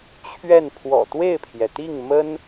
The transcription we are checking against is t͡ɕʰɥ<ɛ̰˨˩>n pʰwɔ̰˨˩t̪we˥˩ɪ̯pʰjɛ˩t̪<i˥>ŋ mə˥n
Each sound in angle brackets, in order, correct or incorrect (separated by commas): incorrect, incorrect